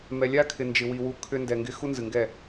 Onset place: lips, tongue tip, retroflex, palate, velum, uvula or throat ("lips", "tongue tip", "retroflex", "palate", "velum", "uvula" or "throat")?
lips